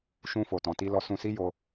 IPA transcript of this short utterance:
ʃ ũ˧ f o˨ t ɔ̃˨ t i˧ l ɔ˧ s ũ˧ s i˦ j o˧

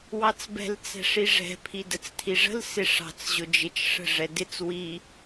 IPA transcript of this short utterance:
w ɑ t͡s b ɛ̤ l t͡s ɛ̤ ʂ i ʐ ɛ̤ pʰ i d ə t͡s tʰ i ʐ ə̤ l s ɪ ʂ ɑ̤ t͡s ʑ ʊ d͡ʒ ɪ t͡ʃ ʂ ə̤ ʐ ɛ d ɪ t͡s w i

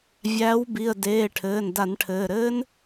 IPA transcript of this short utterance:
vʲ æː˨˦ w b i˩˧˩ ə̯ d eː˩˧˩ ʈʰ ɘː˩˧˩ n d a˧˩˧ n ʈʰ ɘː˩˧˩ ɾ ɘː˦˥ n

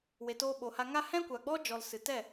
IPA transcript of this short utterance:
w e˨ t oː˧ ɓ oː˨ h a˧ ŋ a˦ h ɛ̃˦ kʷ a˨ ɡ͡b ɔ˦ d͡ʒ ɔ˨ l s ɨ˨ t ɛ˦˨

